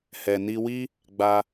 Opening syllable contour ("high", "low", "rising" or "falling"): low